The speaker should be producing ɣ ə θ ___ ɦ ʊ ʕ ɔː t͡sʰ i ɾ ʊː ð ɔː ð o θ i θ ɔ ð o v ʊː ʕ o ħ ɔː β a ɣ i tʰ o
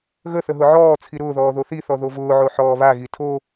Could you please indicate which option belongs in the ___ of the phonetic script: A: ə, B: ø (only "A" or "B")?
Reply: A